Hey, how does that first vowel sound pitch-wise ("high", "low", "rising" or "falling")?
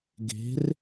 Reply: rising